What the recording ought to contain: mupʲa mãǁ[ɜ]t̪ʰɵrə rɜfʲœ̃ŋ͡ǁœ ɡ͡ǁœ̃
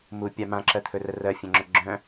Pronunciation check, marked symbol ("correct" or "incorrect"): correct